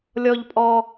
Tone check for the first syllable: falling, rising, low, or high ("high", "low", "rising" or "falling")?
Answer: high